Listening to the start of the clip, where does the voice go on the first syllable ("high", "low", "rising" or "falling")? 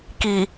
low